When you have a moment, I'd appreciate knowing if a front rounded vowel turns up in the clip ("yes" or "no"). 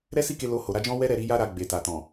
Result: no